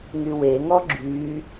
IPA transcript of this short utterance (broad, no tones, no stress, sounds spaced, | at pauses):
ŋ y w e ŋ ɔ ɡ͡ǁ y